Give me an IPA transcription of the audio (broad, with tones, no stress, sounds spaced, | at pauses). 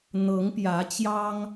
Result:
n̪ ɤ˨˦ ŋ p j ä˨˦ t͡ɕ j ɑ˦ ŋ